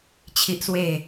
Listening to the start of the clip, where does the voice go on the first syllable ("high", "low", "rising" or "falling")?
high